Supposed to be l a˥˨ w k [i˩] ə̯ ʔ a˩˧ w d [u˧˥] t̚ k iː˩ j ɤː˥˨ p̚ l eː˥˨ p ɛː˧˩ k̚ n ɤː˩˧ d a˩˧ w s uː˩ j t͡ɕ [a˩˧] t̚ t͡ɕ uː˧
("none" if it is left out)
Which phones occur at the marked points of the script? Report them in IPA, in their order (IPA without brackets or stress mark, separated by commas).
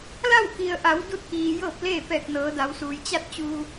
i˩, u˥˨, a˥˨